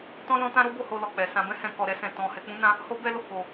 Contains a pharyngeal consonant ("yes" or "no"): no